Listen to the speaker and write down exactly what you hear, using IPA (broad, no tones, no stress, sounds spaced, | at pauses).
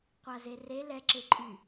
qʷ a z e r e l ɛ ǁ e ǃʼ y